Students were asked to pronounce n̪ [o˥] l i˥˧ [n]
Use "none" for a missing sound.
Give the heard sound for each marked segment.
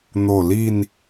o˧˩, n

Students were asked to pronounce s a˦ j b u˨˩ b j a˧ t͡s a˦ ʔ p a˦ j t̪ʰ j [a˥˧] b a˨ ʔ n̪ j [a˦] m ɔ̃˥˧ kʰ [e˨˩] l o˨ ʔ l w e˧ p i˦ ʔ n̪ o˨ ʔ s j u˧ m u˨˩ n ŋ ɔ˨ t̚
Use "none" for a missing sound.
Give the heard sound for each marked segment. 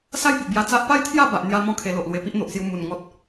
a˥˧, a˧, e˧

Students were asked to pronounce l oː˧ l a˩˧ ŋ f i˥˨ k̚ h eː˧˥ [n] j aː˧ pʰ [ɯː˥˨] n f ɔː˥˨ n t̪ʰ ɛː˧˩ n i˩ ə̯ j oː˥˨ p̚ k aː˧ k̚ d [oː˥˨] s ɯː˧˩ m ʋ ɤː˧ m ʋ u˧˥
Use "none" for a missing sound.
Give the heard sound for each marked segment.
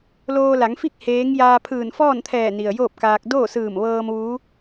ŋ, ɯː˧˩, oː˥˨

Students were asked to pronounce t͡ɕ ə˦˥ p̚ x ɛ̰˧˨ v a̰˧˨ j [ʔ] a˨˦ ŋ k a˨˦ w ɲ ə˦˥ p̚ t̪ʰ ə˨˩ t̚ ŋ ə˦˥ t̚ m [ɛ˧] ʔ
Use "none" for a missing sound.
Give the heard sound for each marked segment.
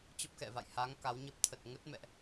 h, ɛ̰˧˨

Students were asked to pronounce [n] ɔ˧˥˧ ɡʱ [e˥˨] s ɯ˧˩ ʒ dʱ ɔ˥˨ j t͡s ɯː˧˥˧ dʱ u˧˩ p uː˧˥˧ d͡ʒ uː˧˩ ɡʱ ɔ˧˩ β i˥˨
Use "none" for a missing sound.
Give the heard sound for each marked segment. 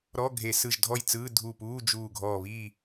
ɾ, e˧˩˧

